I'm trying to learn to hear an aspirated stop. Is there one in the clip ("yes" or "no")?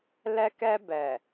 no